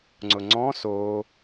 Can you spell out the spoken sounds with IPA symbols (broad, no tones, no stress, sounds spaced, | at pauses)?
ŋ͡ǀ ʊ ŋ͡ǀ ɔ̃ s o